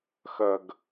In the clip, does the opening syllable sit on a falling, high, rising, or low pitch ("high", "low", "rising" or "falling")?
low